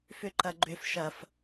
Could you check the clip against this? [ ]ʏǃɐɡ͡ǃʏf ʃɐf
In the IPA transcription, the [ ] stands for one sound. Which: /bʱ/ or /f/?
f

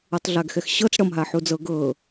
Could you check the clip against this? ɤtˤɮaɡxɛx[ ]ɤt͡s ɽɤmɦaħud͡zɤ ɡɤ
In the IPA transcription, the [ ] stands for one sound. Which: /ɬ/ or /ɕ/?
ɕ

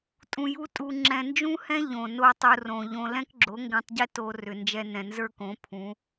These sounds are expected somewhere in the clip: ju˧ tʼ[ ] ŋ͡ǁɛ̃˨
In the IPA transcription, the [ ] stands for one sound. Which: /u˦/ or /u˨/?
u˨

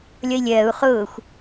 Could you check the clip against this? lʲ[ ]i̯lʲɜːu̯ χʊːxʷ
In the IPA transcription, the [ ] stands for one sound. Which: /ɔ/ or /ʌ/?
ʌ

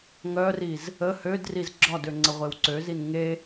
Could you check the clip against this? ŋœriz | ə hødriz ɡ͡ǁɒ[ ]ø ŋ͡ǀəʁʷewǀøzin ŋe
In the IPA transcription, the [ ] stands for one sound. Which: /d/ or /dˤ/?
d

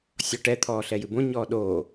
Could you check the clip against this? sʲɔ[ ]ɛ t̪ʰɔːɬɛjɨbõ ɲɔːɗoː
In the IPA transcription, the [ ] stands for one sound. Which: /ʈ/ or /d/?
ʈ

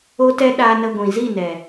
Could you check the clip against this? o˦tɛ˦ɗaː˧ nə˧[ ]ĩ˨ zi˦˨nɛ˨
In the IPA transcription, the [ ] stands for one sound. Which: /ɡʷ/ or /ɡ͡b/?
ɡʷ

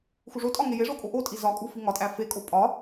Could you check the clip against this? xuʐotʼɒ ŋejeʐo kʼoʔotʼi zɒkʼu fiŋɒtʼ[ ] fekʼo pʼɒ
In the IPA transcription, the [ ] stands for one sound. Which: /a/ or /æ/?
æ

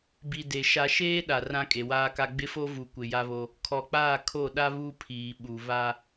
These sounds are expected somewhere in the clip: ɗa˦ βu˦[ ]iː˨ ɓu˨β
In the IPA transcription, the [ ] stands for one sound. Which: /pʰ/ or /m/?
pʰ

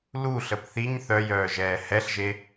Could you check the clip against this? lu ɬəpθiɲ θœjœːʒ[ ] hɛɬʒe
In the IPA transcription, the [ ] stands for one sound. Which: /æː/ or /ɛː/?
ɛː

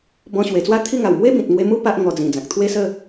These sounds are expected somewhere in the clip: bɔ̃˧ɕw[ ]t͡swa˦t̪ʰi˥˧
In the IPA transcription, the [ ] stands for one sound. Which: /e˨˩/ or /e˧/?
e˨˩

